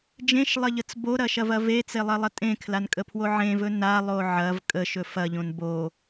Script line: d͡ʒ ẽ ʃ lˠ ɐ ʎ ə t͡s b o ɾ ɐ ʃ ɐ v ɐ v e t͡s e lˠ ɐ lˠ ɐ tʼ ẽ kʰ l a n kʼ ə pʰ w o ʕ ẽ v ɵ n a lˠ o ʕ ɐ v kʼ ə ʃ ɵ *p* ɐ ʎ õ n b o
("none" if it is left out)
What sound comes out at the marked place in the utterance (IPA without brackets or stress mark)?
f